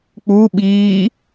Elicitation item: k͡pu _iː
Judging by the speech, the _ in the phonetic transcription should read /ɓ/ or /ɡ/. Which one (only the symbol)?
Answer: ɓ